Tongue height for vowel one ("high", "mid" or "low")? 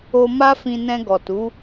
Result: mid